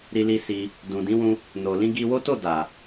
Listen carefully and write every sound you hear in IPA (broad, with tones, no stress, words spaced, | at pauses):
ɾi˧li˧ si˧ | dũ˨dĩ˨˦wũ˧ | no˨ lĩ˧ɡi˧wo˦ to˦˨ da˨